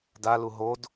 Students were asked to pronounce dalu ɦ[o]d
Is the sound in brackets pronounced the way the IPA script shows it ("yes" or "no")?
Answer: yes